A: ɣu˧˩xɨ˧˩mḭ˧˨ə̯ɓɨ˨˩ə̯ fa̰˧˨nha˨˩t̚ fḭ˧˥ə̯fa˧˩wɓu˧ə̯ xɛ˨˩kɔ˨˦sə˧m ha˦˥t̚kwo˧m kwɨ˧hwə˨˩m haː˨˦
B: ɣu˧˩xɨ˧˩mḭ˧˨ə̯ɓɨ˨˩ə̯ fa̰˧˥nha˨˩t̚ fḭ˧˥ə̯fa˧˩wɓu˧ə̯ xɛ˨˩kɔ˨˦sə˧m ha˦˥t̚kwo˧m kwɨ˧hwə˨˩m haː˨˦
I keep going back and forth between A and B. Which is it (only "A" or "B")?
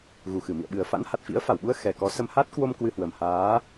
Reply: B